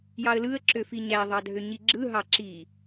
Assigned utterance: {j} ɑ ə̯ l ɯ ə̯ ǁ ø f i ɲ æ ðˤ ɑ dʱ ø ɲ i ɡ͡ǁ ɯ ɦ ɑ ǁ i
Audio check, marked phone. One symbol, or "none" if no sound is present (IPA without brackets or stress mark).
j